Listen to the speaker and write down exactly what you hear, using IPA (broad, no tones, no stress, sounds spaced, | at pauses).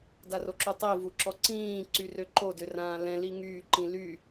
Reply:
d a r o ǁ u tˤ i v u ǁ ɔ ǀ ĩː ǀ y r ø ǃ o d ø r ãː l ɛ̃ l i ŋ yː ǃ ĩ l y